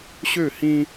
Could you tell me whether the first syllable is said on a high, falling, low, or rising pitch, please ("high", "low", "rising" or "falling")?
falling